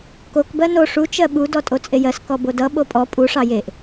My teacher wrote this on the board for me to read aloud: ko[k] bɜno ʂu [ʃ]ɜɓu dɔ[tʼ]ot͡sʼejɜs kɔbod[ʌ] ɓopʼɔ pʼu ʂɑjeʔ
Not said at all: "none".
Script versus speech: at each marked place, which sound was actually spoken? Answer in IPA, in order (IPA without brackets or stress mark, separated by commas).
k, t͡ʃ, tʼ, ʌ